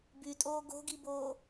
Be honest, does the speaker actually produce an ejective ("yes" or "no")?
yes